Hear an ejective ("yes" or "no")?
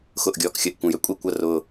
yes